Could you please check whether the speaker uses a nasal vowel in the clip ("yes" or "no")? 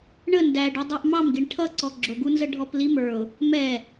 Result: no